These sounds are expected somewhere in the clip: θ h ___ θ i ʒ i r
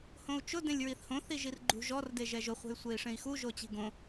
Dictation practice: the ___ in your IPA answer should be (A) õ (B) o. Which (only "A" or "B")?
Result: A